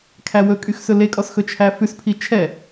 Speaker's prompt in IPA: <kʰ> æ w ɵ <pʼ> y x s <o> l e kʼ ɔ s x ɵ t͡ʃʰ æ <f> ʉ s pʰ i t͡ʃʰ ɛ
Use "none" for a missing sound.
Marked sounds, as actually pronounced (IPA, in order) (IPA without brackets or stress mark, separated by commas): kʰ, kʼ, ɵ, f